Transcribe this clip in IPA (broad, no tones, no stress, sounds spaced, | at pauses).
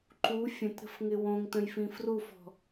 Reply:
ǃ u fʲ ə̃ t ɾ ə̤ f ŋ ɪ w õ ŋ t ə̃ j f ĩ f r u f ɔ̤